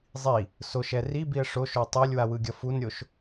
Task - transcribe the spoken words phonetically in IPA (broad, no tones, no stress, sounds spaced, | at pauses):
zˤ i | s o ʃ ɛ r i b i ə̯ ʂ o ʃ o tˤ e lʲ w a w ɯ ɡʲ ʌ f u n ɾʲ o ʃ